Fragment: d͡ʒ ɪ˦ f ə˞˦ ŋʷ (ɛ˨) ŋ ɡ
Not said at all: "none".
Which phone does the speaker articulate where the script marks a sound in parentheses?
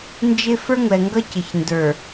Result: ɛ˨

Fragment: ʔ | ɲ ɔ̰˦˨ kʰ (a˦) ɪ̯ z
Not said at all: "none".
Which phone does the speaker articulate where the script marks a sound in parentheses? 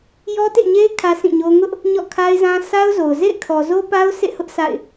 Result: a˦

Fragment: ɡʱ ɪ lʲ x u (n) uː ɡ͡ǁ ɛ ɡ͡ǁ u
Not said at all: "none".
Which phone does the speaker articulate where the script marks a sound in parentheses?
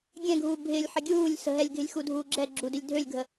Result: dʱ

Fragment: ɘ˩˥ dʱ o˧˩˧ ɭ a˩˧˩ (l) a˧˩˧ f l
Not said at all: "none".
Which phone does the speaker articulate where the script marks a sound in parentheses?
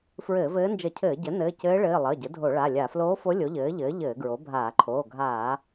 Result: lʲ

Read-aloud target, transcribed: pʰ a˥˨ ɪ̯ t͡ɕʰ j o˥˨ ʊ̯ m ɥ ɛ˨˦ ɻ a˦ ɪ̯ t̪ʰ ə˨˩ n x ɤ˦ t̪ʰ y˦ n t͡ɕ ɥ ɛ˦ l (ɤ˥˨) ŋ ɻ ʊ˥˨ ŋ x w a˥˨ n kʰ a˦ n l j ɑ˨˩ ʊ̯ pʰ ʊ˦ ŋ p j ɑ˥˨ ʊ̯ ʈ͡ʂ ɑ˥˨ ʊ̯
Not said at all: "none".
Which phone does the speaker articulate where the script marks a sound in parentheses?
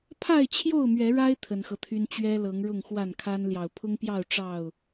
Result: ɤ˨˦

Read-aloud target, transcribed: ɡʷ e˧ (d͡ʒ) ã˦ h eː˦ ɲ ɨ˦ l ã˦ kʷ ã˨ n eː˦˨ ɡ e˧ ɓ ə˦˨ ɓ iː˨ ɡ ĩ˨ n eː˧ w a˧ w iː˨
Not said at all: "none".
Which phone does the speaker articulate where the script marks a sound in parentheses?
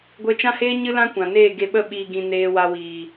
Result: t͡ʃ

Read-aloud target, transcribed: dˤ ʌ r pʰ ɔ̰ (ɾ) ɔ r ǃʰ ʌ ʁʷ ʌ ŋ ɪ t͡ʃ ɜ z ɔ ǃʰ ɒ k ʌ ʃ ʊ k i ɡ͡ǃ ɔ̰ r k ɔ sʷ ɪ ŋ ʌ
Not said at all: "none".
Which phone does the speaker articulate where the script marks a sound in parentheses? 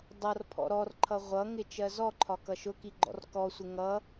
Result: ɾ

